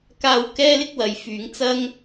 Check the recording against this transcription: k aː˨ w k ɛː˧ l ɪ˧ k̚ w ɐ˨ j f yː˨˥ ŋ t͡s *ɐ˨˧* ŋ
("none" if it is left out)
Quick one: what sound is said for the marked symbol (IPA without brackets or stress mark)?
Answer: ɐ˥